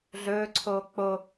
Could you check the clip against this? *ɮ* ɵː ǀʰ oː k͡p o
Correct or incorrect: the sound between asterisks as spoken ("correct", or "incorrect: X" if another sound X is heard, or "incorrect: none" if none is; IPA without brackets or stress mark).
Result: correct